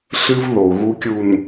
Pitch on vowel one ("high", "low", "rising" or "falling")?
high